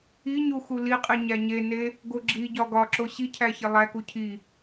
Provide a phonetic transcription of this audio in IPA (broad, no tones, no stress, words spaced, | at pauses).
iɲu xuliqʼi ɲæɲene | ɡoɡ͡ǁiɟɒ ɡɒǁo ɕicʰæ çelˠæku cʰi